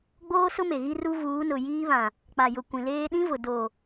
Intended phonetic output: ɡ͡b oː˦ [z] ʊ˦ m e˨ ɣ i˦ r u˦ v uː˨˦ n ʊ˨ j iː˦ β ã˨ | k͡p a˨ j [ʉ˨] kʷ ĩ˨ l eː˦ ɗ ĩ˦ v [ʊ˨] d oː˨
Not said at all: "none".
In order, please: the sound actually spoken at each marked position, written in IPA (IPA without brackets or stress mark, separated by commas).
s, ʊ˨, ʊ˨